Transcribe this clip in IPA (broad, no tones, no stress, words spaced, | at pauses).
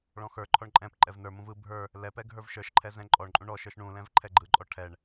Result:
ɭɔ̃xə˞ǃʰɔɳ ǃʼɛ̃p ǃʼɛvnə˞mũv ɯ bʱə˞ | lɛpɛ ɡʱə˞vʃə˞ʃǃʰɛ zɛ̃ǃʼɔɳǃʼũ ɳɔʃə˞ʃ ɳũlɛ̃v ǃʰɛɡ͡ǃɯǃʼɔ ʈʰɛɳ